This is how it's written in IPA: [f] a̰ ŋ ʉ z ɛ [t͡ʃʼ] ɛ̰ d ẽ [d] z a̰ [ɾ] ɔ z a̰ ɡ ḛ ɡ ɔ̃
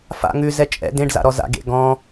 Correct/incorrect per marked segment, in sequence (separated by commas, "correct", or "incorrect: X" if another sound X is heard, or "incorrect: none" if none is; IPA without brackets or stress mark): correct, correct, incorrect: ɖ, correct